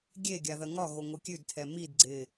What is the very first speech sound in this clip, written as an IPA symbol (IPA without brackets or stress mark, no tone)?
ɡʲ